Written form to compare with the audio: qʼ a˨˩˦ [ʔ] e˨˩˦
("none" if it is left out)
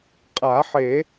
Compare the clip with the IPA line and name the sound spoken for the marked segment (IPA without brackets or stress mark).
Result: ħ